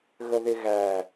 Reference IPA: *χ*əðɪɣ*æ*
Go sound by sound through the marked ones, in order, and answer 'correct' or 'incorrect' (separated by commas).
incorrect, correct